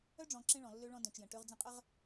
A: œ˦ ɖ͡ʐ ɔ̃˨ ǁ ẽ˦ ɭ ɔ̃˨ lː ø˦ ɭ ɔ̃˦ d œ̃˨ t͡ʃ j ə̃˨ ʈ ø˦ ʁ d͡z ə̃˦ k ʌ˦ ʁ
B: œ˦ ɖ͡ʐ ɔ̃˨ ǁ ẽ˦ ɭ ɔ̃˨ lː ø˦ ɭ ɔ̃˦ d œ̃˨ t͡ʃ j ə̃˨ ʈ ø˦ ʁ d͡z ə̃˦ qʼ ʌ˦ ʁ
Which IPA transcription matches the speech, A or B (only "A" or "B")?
B